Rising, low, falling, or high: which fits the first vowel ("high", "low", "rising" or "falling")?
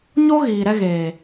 high